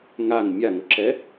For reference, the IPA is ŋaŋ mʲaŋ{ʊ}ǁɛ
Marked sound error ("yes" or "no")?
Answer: no